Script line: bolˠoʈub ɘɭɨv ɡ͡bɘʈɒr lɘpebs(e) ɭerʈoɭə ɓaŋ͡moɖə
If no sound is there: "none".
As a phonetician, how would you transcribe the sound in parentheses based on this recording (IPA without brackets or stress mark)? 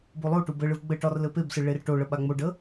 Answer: ɨ